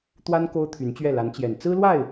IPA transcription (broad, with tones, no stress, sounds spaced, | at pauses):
t̪ w a˥ n k o˥ ʊ̯ t̪ʰ y˧˥ n t͡ɕ ɥ ɛ˥˩ l a˧˥ n t͡ɕ j ɛ˨˩ n t͡s ɹ̩˥ l w a˥˩ ɪ̯